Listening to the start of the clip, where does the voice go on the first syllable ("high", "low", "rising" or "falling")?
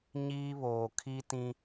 high